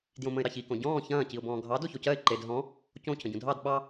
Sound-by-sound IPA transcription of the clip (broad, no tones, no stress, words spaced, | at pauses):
djõmə̃ɪ̯ɾɑçi kõɟɔ̃ː çɐ̃ː ciʊ̯bɔ̃ːɡʱɑ doçocɜɪ̯ ǃed ɦɔ̃ | cõ cʰə̃ɟũdʱɑd ɓɑ